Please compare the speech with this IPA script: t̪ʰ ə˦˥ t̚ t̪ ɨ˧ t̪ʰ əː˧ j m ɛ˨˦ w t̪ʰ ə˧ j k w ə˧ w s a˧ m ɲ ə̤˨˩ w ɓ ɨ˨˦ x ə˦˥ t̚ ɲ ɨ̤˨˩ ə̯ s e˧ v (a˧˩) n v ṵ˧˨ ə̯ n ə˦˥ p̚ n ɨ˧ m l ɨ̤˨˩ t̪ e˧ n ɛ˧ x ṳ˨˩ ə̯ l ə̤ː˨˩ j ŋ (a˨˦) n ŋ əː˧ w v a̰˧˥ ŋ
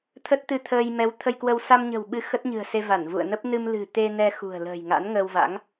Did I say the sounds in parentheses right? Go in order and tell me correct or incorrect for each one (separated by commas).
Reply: correct, incorrect